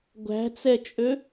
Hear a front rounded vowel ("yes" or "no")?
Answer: yes